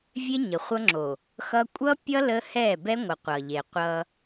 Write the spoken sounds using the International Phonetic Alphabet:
vʲ e˦ ɲ ə˨ χʷ ʌ˦ ŋ͡ǁ o˨ | x ʌ˦ kʷʼ ʌ˦ pʲ ʌ˦ l ə˦ h ɛ˦˨ b ɛ˦ ŋʷ ə˨ qʷ ʌ˨ ʎ e˨ qʷ ʌ˦

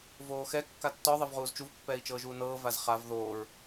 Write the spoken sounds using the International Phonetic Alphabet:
v oː x ɛ kː a tː ɔ ðˤ ɤ v ʁ uː z t͡ʃ u v pː ɛː i̯ t͡ʃ ɤː ʒ uː n ɤː v a z χ a v ð oː ɹ

